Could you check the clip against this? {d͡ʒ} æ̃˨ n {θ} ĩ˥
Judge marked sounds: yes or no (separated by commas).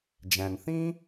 yes, yes